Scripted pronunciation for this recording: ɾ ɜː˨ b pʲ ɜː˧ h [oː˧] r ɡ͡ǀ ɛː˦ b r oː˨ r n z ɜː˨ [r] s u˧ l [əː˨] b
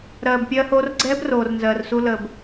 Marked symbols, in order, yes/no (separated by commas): yes, yes, yes